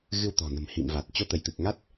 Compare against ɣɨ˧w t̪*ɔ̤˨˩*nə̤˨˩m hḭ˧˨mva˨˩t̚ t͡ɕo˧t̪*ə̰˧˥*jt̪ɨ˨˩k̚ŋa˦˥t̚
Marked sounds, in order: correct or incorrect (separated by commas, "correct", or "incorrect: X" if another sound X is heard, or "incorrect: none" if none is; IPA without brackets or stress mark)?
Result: correct, incorrect: ə˧˩